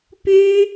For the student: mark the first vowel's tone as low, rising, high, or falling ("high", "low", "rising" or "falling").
high